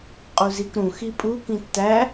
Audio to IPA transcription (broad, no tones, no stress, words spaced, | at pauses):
qʼuzikɾũ xipʼu kĩtːæ